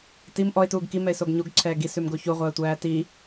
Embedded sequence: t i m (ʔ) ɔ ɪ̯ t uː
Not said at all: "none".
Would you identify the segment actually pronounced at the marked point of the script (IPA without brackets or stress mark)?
ʔ